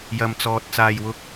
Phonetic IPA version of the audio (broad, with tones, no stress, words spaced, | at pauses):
jɐ˨mt͡sɔː˨t̚ t͡saː˨jwʊ˧k̚